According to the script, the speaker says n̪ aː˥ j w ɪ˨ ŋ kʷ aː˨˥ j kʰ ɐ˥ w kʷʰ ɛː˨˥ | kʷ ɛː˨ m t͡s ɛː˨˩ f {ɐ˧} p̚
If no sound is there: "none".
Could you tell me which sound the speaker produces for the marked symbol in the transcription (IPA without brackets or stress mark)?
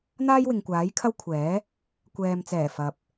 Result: ɐ˨